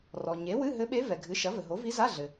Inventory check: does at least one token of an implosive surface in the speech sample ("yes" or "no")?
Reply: yes